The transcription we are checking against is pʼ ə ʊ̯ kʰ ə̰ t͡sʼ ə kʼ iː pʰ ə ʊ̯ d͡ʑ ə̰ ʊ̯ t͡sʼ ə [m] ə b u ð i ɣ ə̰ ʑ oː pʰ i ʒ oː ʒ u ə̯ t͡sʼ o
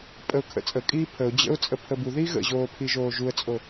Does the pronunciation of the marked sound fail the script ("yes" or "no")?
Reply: yes